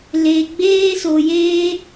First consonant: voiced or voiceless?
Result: voiced